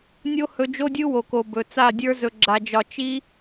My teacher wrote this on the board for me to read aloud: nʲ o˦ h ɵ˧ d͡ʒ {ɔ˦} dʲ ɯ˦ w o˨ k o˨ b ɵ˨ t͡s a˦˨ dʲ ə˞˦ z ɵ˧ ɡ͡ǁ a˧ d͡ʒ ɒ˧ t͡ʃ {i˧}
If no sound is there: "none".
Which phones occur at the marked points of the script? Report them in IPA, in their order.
o˦, i˦

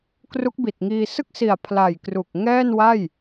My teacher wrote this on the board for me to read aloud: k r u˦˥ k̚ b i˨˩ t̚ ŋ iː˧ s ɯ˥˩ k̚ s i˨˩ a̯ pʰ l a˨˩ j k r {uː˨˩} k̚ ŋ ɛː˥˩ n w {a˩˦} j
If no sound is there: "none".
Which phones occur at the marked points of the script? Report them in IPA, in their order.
u˨˩, a˥˩

